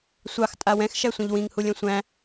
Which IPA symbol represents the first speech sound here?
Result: sʷ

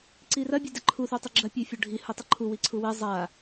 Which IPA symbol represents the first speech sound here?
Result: ǀ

